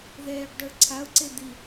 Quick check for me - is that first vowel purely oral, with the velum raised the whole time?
yes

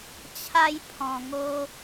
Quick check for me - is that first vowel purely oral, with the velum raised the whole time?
yes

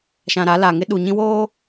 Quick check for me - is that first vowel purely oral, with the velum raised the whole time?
no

